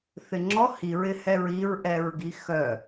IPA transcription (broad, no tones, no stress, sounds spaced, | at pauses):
θ ɪ ŋ͡ǁ ɔ h i ɹ ɪ h ɛ ɹ i ɹ ʔ ɛ ɹ ɡ i x œ